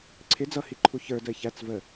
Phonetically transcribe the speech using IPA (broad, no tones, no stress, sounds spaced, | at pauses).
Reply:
ǀʰ ɪ d͡z ʌ h i ǃʰ u ç ə˞ d ə ɪ̯ ç æ t͡s v ə